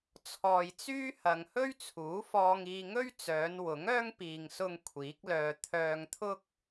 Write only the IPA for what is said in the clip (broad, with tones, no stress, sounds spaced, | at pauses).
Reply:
t͡sʰ ɔː˨ j t͡s yː˥ h ɐ˨ ŋ h ɵ˥ ɥ t͡sʰ uː˨˥ f ɔː˧ ŋ iː˧ ŋ ɵ˥ ɥ t͡s œː˨˧ n w ʊ˨˥ ŋ œː˥ ŋ p iː˨ ŋ s ʊ˧ ŋ kʷʰ iː˨˥ k̚ l œː˧ t̪ʰ œː˧ ŋ t̪ʰ ʊ˥ k̚